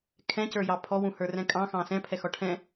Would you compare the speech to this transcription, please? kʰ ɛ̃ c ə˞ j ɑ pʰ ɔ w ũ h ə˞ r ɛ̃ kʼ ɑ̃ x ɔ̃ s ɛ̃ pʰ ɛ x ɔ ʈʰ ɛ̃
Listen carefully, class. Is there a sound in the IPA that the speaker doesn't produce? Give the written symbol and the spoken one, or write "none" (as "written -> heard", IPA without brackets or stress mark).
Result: ɔ̃ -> ɑ̃